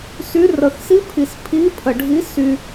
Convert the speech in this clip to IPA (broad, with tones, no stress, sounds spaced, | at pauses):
s y˧˥ r ə˨˩ x s i˧˥ pʰ i˨˩ s pʰ i˧˥ pʰ ə˨˩ ɖʱ i˧˥ s y˧